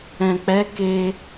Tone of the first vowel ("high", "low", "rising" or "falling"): low